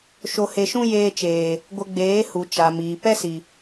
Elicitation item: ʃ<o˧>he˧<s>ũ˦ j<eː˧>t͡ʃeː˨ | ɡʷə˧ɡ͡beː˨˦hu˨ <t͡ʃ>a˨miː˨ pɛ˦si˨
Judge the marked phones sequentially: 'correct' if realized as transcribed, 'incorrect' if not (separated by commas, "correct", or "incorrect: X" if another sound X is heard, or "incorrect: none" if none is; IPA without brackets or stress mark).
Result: correct, incorrect: ʃ, correct, correct